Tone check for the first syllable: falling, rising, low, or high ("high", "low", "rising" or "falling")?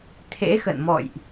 rising